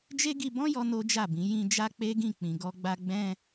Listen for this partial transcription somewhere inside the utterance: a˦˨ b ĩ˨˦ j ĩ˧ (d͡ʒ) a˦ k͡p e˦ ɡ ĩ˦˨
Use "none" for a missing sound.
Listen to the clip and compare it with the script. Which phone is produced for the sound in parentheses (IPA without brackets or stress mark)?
d͡ʒ